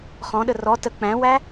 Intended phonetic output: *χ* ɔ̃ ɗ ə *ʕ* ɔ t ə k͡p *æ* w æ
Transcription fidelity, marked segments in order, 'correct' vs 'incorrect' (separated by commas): correct, incorrect, incorrect